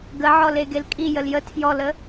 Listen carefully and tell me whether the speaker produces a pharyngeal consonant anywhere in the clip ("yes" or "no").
yes